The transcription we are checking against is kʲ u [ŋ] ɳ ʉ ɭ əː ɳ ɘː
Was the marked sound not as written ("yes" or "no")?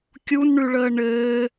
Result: yes